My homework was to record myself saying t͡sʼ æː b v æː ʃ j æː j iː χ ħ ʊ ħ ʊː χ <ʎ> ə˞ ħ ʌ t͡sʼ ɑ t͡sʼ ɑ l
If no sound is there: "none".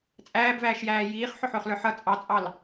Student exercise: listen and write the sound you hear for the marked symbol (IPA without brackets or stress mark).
l